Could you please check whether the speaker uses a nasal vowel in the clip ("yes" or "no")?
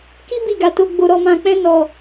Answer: yes